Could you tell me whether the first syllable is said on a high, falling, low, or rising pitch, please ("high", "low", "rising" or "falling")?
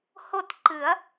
falling